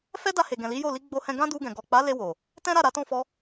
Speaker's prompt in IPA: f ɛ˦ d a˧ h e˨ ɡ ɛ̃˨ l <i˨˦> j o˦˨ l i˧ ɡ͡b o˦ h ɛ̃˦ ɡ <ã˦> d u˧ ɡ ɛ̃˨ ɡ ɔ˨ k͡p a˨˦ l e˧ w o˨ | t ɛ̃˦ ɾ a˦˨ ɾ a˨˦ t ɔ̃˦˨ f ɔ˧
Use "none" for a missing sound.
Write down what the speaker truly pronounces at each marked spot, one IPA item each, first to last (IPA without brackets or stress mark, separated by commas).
i˨˦, ã˦